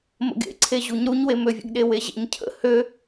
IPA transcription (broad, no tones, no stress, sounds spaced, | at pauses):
m ə̰ ɡ ḛ ǀʰ e ʑ u ɲ ɾ u ɲ w e m ø vʲ ə̰ ɡ ɗ e w e ʑ ḛ ɲ cʰ ə̰ h ø